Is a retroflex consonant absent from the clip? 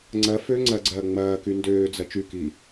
yes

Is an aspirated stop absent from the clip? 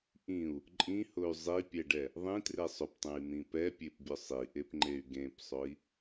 yes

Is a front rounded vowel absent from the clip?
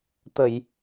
yes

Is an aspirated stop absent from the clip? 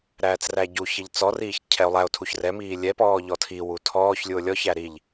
no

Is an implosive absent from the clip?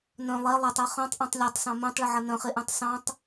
yes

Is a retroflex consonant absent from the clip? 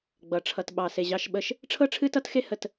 no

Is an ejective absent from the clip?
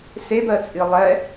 no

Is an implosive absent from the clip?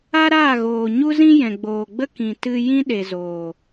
no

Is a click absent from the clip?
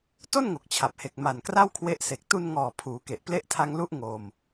yes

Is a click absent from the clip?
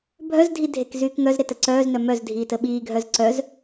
no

